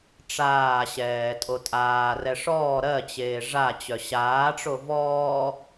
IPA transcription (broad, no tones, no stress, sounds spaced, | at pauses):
ʈ͡ʂ aː ɕ ɛː tʼ o tʼ aː r ɛ ʂ ɔː ɾ ɜ t͡ɕ eː ʐ a t͡ɕ œ ɕ aː ʈ͡ʂ o v ɔː